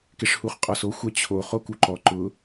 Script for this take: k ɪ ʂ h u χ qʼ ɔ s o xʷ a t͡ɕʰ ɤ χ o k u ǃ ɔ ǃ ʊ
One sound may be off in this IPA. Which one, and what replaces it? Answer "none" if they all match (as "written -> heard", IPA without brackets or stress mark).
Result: ɤ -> o